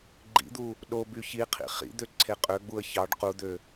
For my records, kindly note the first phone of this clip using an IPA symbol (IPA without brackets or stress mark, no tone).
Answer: ɡ͡ǃ